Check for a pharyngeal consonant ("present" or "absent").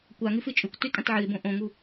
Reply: present